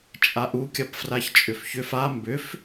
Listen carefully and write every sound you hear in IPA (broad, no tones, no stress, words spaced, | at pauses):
t͡ʃʼaʔu kʲɐpfraçt͡ʃʼʏfçʏf a mbʏf